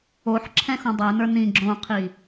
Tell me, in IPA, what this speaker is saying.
oħǁʰɛ̃ xõdˤɛnə˞ nĩ ɡ͡ǁõqʰi

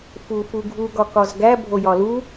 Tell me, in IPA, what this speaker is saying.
fufuɡʱu ɡɒkɒzɡæ bʱojɒlu

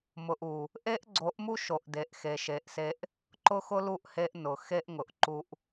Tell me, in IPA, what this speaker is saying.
mʊ˨ʔ u˨ | ʔe˦ʔɡ͡ǀo˨˦ʔmu˦ʃo˨ʔ de˨ʔxe˨ʃe˨ʔse˦ʔ | ǃʊ˦xʊ˦lu˦˨ʔhe˦ʔ nʊ˨ xe˦ʔŋʊ˨ʔǃu˦ʔ

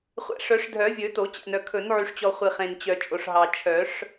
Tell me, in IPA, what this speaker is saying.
χʷæ̰˨ʂœ˨˩˦ʂdʱœ˨˩˦vʲɵ˨˩˦ to˨˩˦t͡ɕæ̰˨nœ˨ kʰɵ˨˩˦nʕy˨ʂt͡ɕɔ˨ χʷi˨χẽ˨n t͡ɕœ˨t͡ʃʼo˨ʂɦɑ˨ t͡ʃʰœ˨˩˦ʂ

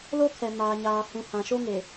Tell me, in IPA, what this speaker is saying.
lo˦kʰɛ˨maː˨ ɲaː˨ hũ˨hã˨ʃo˦ ŋe˨

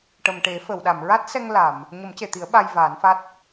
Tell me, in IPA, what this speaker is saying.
ʈə˨˩mʈe˨˩˦fə˨˩˨wɗa˨˩˨m ɹa˦˥t̚sɛ˧ŋ la˨˩˨m | ɲə˨˩˦mce˨˩˨t̪i˨˩˦ə̯ ɓa˧jvaː˨˩˦nfa˦˥t̚

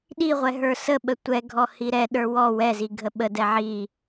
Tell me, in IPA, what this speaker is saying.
ɗiʁʷɛ ɦə˞səɓə tʷɛɡʱɔ hiɾɛɗə˞ wɔ wɛzi ɡʱəɓədɛ ʕi

